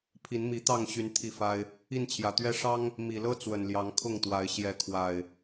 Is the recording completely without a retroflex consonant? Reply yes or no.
no